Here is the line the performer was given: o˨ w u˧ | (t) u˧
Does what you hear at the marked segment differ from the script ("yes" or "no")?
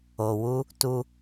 no